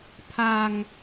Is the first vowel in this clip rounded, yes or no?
no